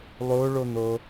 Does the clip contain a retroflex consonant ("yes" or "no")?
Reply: yes